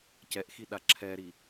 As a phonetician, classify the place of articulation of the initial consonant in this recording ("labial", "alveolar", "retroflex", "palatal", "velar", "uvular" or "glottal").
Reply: palatal